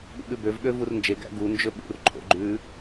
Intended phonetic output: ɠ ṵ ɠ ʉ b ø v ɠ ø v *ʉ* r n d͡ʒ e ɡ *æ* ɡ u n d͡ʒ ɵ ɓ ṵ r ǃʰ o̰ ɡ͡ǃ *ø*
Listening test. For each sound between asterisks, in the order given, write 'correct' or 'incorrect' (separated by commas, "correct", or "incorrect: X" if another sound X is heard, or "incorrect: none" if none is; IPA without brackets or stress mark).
incorrect: u, incorrect: æ̰, incorrect: ʉ